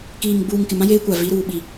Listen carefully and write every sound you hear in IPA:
k iː˨ ŋ ɡ͡b uː˨ ŋ k ɪ˨ m ã˦ j eː˦ kʷ a˨ v i˨˦ ɾ uː˨ ɓ i˨

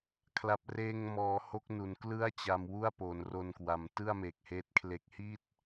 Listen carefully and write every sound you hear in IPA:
kʰ l a˨˩ p̚ r eː˧ ŋ m ɔː˩˦ h o˦˥ k̚ n u˩˦ n k l ɯ˥˩ a̯ t͡ɕ a˧ m w u˥˩ a̯ p o˩˦ n r o˧ n k w a˩˦ m t ɯ˥˩ a̯ m e˨˩ k̚ h eː˦˥ t̚ kʰ l e˦˥ k̚ h i˥˩ t̚

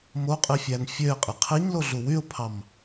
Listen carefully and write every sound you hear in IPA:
m o qʼ i fʲ æ n fʲ ø ɪ̯ qʼ i qʰ i ɲ l o ɮ u w y ʊ̯ pʰ ɑ m

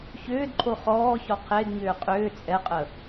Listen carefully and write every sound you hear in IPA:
ç ʏː d ǃʰ o χ ɔː ç ɔ qʰ e d ɲ ʏː qʼ ʏː t͡sʼ ɛ qʼ ə

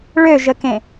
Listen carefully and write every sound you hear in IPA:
ɭ ø ʒ ə k ẽ

